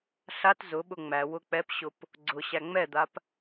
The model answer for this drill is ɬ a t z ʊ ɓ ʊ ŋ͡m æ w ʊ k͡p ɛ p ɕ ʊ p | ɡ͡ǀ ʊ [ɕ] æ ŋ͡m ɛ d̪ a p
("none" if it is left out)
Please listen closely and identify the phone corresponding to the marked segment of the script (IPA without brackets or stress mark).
ɕ